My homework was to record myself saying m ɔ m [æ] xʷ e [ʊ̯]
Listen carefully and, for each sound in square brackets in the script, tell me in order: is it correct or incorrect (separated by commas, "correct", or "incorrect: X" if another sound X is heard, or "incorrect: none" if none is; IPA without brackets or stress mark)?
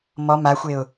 incorrect: a, correct